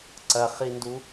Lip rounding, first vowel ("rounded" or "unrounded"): unrounded